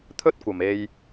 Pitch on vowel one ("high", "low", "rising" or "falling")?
high